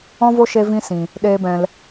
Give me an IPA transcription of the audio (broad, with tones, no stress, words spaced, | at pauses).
ɔ̃˦vo˦ ʃe˦vĩ˦sĩ˨ | ɗeː˦bɛ̃˧l